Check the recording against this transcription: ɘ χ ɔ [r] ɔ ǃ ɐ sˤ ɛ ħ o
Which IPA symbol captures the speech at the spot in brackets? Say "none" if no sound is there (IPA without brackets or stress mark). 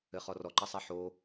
r